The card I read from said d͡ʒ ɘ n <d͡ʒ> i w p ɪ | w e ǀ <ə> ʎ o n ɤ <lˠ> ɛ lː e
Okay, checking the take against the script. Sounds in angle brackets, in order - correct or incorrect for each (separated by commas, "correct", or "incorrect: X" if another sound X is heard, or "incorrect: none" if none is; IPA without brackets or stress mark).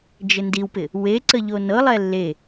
incorrect: d, correct, correct